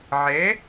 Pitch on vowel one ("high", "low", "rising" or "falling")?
rising